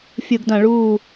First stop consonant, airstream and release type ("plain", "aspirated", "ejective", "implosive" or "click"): plain